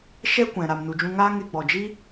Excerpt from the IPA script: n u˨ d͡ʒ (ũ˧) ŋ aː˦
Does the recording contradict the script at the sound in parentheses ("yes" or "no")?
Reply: no